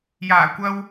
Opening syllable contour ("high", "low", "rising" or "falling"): low